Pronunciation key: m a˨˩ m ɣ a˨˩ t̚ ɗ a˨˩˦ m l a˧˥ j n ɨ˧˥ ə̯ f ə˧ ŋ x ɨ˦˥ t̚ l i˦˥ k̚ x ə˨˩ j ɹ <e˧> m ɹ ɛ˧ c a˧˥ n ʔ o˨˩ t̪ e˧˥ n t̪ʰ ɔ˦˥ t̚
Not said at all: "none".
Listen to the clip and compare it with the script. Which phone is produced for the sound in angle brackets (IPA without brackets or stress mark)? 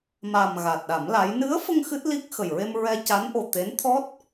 e˧